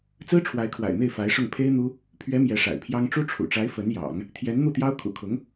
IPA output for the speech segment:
t͡s ɹ̩˥ ʈ͡ʂʰ w a˧˥ ɪ̯ kʰ w a̰˨˩ ɪ̯ n̪ e˥˩ ɪ̯ f a˧˥ ɪ̯ ʂ ʊ˥˩ ŋ pʰ e˥ ɪ̯ n̪ u˥ | pʰ ɥ ɛ˧˥ m j ɛ˧˥ ʂ a̰˨˩ ɪ̯ pʰ j ɑ˥ ŋ ʈ͡ʂ u˥ ʈ͡ʂʰ ṵ˨˩ ʈ͡ʂ a˧˥ ɪ̯ f ə˧˥ n j ɑ̰˨˩˦ ŋ | t̪ʰ j ɛ˧˥ n n̪ u˥˩ t̪ j ɑ˥ ʊ̯ kʰ ṵ˨˩ kʰ ʊ˧˥ ŋ

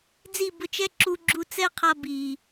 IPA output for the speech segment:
d͡z i˦˨ b ʊ˧ t͡ʃ ɛ˦ ǁ u˧ ɡ͡ǁ u˧ t͡s ɛ˦ qʰ a˧ b iː˨

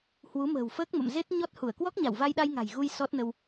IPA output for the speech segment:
h w u˨˦ m ə̤ː˨˩ w f əː˦˥ k̚ m ə̰˧˨ m z e˦˥ t̚ ɲ ɔ˦˥ t̚ h u˧˩ ə̯ k w ɔ˦˥ k̚ ɲ a˧˩ w v a˧ j ɗ a˧ j ŋ a̤˨˩ j ɣ u˧ j s ɔ˦˥ t̚ n ə˧ w

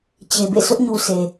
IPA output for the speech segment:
t͡ɕ e˨ b ḛ˦˨ s ʊ˦ ʔ ɲ u˨ s e˨

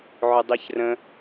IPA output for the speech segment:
ʕ ʊ dˤ i ç r ə̃

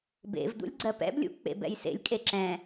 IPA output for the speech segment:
b ḛ v d̪ ṵ lʲ ɡ͡ǀ ɜ p ɛ̰ b lʲ ṵ k͡p ḛ b ɛ̰ j s ḛ lʲ kʼ e ǁ ɛ̃

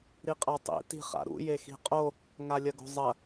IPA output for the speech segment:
ɾ i qʼ a tˤ ḭ t i̤ χ a̰ ɾ ṵ j e x i̤ qʼ o | ŋ a lʲ ɐ ɡ o̤ zˤ ɐ

